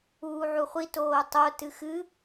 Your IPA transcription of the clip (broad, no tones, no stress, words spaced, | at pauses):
uːʕuχʷi toːtˤo tɨxɨ